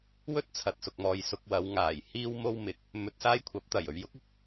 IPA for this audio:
w ɵ˥ t̚ t͡sʰ ɐ˨ t̚ s ʊ˨ k̚ m ɔː˨ j s ʊ˧ k̚ w ɐ˨˧ w ŋ aː˨˩ j h iː˥ w m o˥ w m ɪ˨ k̚ | m ɵ˧ t̚ s aː˥ j kʷʰ ɐ˨˥ p̚ t̪ ɐ˨˩ j ɵ˨ ɥ j ʊ˨˥ k̚ ɪ˧ k̚

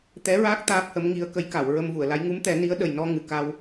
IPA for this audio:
t̪ ɛ˧˥ ɹ aː˦˥ k̚ t̪ aː˦˥ p̚ h ə˧˥ m ŋ i˧˥ ə̯ k ə˧˥ j k a˨˩˨ w ɹ ə˧ m v u˨˩˨ ə̯ l a˧˥ j ŋ u˧˥ m t̪ ɛ˨˩˦ n i˧˥ ə̯ ɗ ə˨˩ j n ɔ˧ ŋ ɨ˨˩˨ k a˧ w

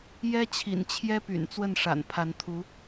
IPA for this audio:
j ɛ˥ t͡ɕʰ ḭ˨˩ n t͡ɕʰ j ɛ˥ p y̰˨˩ n t͡s w ə˥˩ n ʂ a̰˨˩ n pʰ a˧˥ n t̪ʰ u˧˥

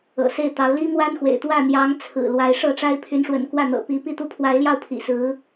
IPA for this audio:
ɤ̰˨˩ s e˥˩ ɪ̯ t̪ ɑ˧˥ ʊ̯ l i˥ m w a˥ n x w ḛ˨˩ ɪ̯ t̪ w ä˥˩ n̪ j ɑ˧˥ ŋ t͡sʰ ɹ̩˨˩ l w a˧˥ ɪ̯ ʂ ɤ˥˩ ʈ͡ʂ a˥ ɪ̯ pʰ y˧˥ n ʂ w ə̰˨˩ n k w ä˥˩ n̪ ɤ̰˨˩ p i˧˥ p i˥˧ t̪ u˥˩ pʰ w a˧˥ ɪ̯ l j ɑ˥˩ ʊ̯ pʰ ḭ˨˩ s ɹ̩˧˥

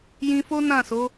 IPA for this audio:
j ĩ˧ f o˦ n ã˦˨ s o˨˦

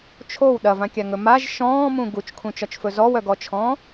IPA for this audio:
t͡ʃʰ o w ɗ ɐ v ã kʲ a ŋ ɵ m a ʒ ʃ ɔ̃ː m ũ ɡ u t͡ʃ kʰ ũ t͡ʃ ɒ t͡ʃ f ɵ z ɔ w œ ɡ ɔ t͡ʃʰ ɔ̃ː

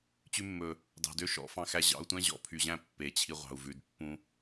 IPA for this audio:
t͡ɕ ʉ˧ mː ɵ˨ | d ɑ̤˨ d ø˦ ʃ ɔ̰˧ f ɑ̃˧ x æ˧ ʑ ɑ̰˧ u̯ tʷ æ̃˦ ʑ ɔ̰˧ pʰ y˨ ʑ æ̃˦˨ pː e˨˦ t͡ɕʰ i˧ ʁʷ ɑ̤˨ u̯ v ʉ˨ d pː ũ˧

